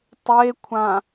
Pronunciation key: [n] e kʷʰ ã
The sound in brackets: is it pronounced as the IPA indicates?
no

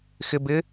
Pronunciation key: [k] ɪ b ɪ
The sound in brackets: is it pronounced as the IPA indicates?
no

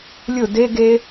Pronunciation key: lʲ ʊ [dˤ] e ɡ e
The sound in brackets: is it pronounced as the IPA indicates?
no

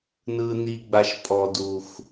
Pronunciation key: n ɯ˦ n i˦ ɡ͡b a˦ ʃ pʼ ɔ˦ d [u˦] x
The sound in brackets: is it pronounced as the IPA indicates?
yes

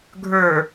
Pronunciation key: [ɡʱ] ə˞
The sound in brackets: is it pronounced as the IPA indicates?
yes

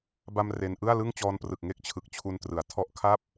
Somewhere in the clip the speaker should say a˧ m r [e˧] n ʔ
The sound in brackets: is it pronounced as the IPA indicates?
yes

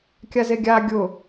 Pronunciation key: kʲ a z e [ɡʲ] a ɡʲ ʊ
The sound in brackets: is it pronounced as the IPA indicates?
yes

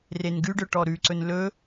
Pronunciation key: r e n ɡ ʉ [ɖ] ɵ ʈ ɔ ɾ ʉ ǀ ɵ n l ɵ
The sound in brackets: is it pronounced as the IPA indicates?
yes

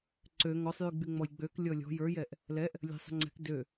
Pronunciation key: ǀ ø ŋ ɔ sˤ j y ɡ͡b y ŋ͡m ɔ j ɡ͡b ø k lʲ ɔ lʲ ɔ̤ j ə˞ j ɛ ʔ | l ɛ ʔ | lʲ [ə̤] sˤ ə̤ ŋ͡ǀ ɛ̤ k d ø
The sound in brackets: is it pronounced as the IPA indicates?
yes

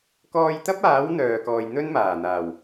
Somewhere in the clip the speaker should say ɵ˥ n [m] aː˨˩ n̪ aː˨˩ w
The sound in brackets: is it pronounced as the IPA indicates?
yes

